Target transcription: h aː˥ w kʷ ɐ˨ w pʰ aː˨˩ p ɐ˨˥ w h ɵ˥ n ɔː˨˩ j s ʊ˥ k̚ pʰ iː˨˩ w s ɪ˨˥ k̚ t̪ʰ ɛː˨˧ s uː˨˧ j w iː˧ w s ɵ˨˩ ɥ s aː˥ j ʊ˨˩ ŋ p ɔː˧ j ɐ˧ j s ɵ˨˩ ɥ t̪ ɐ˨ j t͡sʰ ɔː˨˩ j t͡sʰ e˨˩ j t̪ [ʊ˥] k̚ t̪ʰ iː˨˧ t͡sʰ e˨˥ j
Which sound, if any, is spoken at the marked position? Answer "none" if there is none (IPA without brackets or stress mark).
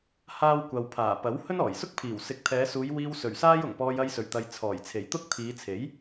ʊ˥